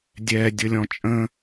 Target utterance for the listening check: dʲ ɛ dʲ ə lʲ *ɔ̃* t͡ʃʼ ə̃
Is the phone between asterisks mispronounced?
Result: no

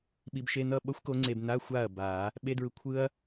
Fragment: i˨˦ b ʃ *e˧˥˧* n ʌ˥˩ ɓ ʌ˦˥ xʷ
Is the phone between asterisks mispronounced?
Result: no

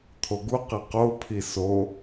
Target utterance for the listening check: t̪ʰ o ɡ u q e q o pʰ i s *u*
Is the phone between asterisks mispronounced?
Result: yes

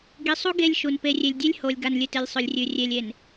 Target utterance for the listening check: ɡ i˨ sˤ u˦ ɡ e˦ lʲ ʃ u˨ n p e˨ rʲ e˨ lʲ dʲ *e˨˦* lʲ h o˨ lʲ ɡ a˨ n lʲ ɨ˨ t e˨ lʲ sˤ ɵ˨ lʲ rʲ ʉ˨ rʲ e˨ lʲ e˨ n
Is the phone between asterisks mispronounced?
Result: yes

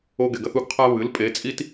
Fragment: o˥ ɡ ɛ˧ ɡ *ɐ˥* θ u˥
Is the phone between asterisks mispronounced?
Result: no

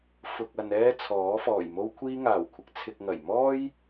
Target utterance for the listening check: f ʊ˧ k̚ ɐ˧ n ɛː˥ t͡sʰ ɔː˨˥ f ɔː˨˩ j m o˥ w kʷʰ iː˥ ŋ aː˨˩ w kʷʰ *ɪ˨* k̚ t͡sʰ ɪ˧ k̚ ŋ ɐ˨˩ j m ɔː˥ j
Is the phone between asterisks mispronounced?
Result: yes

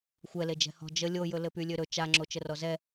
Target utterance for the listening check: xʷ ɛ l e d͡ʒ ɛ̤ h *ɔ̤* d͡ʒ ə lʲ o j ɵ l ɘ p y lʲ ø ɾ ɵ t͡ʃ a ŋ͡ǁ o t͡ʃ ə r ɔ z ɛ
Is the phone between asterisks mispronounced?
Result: no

